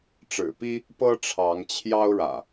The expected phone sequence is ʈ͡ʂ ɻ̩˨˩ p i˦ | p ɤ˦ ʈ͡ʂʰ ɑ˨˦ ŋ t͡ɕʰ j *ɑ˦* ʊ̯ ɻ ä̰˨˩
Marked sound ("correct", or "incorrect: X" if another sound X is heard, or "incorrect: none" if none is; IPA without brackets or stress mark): correct